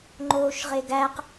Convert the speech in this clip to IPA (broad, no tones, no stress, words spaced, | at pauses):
ŋ͡ǃoːʃʁeɡæq